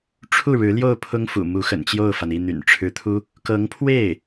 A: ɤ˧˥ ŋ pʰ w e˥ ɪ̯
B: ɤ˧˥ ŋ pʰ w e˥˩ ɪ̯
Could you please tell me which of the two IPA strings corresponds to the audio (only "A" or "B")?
B